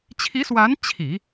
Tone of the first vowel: rising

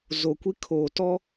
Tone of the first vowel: low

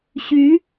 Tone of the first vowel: rising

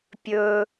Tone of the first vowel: low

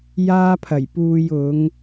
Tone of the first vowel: high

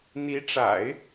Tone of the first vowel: rising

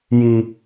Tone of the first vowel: low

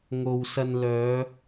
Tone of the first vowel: low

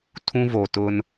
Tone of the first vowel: high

